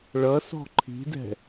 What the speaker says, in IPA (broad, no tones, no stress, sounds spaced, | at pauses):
ɭ ʌ s ɔ̤ ǃʰ i̤ d ɛ̤